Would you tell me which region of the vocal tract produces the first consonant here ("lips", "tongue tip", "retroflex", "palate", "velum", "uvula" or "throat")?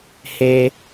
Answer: throat